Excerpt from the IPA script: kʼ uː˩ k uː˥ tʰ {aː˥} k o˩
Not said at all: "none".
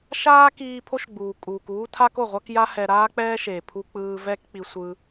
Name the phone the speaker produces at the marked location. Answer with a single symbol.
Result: a˥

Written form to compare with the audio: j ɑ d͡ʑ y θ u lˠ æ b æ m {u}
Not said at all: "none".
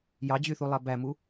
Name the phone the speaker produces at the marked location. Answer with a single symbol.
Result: u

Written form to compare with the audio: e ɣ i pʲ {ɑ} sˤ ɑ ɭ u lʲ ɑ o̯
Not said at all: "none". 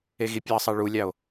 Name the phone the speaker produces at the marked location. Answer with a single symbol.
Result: ɑ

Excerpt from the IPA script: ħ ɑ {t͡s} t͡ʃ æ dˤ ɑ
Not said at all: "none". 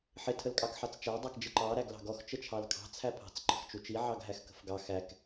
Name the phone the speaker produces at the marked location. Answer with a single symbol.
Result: t͡s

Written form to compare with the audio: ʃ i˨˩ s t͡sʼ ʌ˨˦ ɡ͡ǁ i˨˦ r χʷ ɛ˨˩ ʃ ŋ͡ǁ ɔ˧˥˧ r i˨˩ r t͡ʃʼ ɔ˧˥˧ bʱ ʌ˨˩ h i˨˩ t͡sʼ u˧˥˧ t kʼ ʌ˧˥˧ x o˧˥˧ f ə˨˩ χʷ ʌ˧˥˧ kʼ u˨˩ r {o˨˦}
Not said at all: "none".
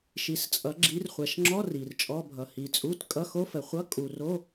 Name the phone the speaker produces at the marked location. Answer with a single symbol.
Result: o˧˥˧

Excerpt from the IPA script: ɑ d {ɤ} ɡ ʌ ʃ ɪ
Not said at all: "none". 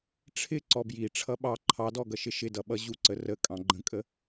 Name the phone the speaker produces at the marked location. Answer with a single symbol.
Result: ɔ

